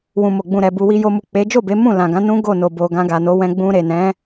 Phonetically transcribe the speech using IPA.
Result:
wũ˨mo˨ɡ͡bũ˨ ɾɛ˨ bu˨wi˧ jo˧mu˨k͡pe˨˦ d͡ʒo˦˨ be˨˦ mũ˦˨lã˨ɡã˨˦ nũ˦ɡo˦˨no˨bo˨ ɡã˧ɡa˨no˨˦wɛ̃˧ ɡ͡bũ˧ɾe˨nɛ̃˨˦

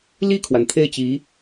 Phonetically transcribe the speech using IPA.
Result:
li˥˩kʰwa˩n t̪ʰe˥˩ɪ̯t͡ɕi˧˥

